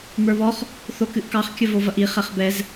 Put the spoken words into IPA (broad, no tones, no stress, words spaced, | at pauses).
mə˞βɔχ | θokɨʔkɑχ kʲəvovɐʔi χɛχbɛz